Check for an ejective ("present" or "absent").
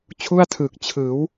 absent